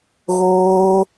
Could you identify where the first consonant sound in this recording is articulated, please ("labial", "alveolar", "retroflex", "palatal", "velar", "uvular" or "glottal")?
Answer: velar